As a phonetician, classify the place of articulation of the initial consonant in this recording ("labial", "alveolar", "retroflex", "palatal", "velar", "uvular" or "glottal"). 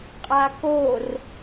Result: uvular